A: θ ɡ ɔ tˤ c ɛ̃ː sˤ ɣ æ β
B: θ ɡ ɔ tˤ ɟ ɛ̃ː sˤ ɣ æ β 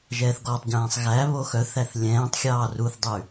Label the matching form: B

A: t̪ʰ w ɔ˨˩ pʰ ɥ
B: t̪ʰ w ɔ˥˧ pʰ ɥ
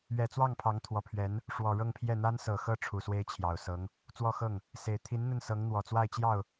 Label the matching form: A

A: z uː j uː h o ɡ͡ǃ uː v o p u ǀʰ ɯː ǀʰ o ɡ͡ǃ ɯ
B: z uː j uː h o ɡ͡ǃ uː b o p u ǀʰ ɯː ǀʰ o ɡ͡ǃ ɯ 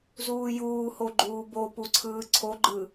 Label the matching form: B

